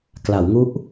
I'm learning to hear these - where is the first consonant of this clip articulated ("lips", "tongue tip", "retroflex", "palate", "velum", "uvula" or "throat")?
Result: velum